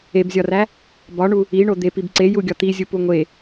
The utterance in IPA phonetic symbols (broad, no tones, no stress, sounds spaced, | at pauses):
e b zʲ ɒ r æ | b ɒ ɳ u | i ɳ o d̪ e p i b ǀ e j u ɡʲ ɒ t̪ i zʲ u p u ŋʷ e